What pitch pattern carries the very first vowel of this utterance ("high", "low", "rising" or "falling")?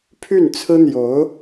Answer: falling